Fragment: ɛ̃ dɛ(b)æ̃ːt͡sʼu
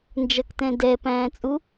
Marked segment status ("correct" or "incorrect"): incorrect